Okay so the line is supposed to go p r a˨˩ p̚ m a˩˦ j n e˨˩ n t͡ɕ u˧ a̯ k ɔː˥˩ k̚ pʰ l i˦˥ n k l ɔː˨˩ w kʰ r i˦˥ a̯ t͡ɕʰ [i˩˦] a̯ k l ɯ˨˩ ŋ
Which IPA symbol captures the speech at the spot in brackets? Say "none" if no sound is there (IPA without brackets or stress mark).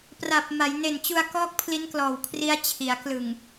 i˩˦